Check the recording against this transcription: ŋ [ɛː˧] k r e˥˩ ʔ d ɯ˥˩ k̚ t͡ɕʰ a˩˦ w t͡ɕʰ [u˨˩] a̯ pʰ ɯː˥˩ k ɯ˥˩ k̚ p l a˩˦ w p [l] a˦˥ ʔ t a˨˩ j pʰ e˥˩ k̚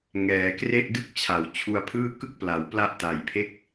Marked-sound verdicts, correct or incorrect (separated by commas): incorrect, incorrect, correct